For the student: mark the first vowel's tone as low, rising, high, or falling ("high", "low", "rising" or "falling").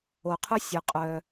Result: low